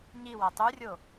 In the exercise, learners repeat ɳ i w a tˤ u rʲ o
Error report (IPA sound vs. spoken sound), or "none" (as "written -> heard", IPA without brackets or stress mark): ɳ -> ɲ